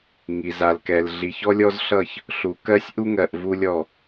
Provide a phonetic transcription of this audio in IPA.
ŋi˨za˨lkɛ˨l ɮi˨çɔ˦lʲɔ˦z ɬʌ˦˨ç | ɬu˨kɜ˦sʲ ʔu˦ŋɜ˨ʔ vu˦lʲɔ˦˨

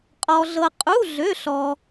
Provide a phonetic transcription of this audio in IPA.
qʼɔ˧ɮɤ˧ qʼu˧˥˧ ɮø˧˥˧ɬɔ˧

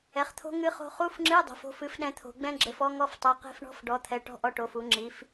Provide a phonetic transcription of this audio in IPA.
ɛ˩˥χt̪ʰo̤˦˥ ŋɨ˦˥χo̤˦˥ χu˧˥˧fŋ͡ǁɨ˧˥˧ dˤo̤˩˥fo̤˧˥˧f ɨ˦˥fɗɛ̃˦˥t̪ʰo̤˩˥ ɡ͡bɛ̃˦˥ɡ͡ǁɘ˩˥fɔ˦˥ŋɔ˧˥˧f tˤo˧˥˧ qe̤˦˥fɳɔ̤˧˥˧f ɖɔ˩˥t̪ʰɛ˩˥ʈɔ̤˧˥˧ ʔɔ˦˥ʈo˩˥fu˩˥ŋ͡ǁi˩˥f

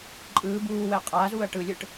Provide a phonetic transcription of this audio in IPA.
ǃʼɯː buːwɛ qʼaːzuːɐ̯ ʈɯlʲɯʈ

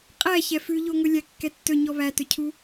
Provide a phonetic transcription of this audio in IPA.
qʼæ çɛfʉʎoŋɵ lʲækːɛtːɵ ɲɔβætɵcʰu

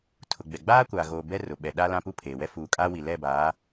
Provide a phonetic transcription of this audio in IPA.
tʰʊ˨ɡ͡bɛ˨ ɡ͡baː˦kʷaː˨ ɣoː˨bɛ˦ rʊ˨ɓɛ˨ ɗa˦ lã˦pu˦pʰeː˨ wɛ˦fuː˨kʼaː˦ wi˨ lɛ˦˨baː˨˦

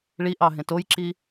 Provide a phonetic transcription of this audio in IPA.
ɭiʔɑ ɦẽtojǁi

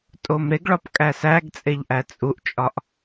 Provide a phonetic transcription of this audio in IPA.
tʼomɾeɡɭɒp kʼæsæɡt͡sʼeʎʔæ t͡sʼuʔt͡ʃʼɒʔ

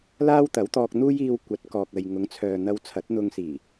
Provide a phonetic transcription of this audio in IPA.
laː˥wt̪ɐ˨˥wt̪ɔː˧k̚n̪uː˥j iː˧w kʷɐ˨˥t̚kɔː˨k̚ɐ˨j ŋʊ˨˧ŋt͡sʰœː˨n̪ɐ˧w t͡sʰɐ˨˥t̚n̪ʊ˧ŋsiː˨˩

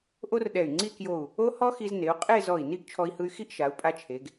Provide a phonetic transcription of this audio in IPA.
ʔo˥rɗɛ˧˩y̯ ŋ͡ǀi˥˧kjo˧˩u̯ | o˥hɔ˥xi˧z ne˩˧u̯qʼe˥˧ zɔ˧˩i̯ni˥˧ɡ t͡ʃʰɔ˧i̯hɯ˧y̯xi˥˧ʔʃa˩˧u̯ pʼa˧t͡ʃʰe˩˧ɡ

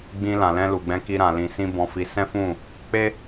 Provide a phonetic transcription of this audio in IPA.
ɡ͡bĩ˧lã˨lɛ̃˧ lu˨ɡ͡bɛ̃˧ ki˦ɾã˧lĩ˧sĩ˦ bɔ̃˧fi˧sɛ̃˦fũ˦˨ | k͡pe˦

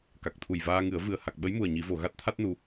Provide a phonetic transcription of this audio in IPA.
ka˨˩k̚t̪ʰu˨˩jvaː˧ŋɨ˨˩˦ə̯ vɨ˨˩ə̯ ha˨˩k̚ɓə˧˥jmu˨˩ə̯ ɲi˨˩˦vo˨˩˨ ɣa˦˥t̚t̪ʰa˦˥t̚nu˨˩

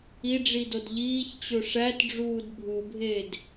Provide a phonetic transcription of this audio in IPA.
iɖ͡ʐidod ʎiːçt͡ɕo ʂætɖ͡ʐuːd bʱubʱeːd

